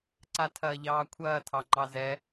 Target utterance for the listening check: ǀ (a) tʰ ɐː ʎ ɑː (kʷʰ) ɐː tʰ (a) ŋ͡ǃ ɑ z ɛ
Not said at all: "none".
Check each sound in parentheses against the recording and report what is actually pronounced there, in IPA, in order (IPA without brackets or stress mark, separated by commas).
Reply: a, kʷʰ, ɑ